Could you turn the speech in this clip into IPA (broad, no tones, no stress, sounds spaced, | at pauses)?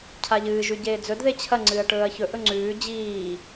cʰ a ʎ ɨː ʒ ʉ ɟ eː d͡z ɵ d ð e t͡ɕʰ ɐ ŋ͡ǀ ɨː ɐ̯ ʈ ɵː ɐ̯ ç ɵ ʔ ɵ ŋ͡ǀ ʉː d͡ʑ iː